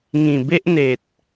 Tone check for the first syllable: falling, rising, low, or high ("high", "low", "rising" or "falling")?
low